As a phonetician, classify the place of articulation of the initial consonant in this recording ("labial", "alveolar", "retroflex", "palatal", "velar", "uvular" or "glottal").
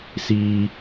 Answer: alveolar